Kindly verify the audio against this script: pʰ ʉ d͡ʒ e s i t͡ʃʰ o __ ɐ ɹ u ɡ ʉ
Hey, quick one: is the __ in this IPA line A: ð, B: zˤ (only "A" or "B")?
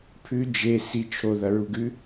A